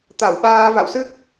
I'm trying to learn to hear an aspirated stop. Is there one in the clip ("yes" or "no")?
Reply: no